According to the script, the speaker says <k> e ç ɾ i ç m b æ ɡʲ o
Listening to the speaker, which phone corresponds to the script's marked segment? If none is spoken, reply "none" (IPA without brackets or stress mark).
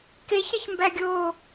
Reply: k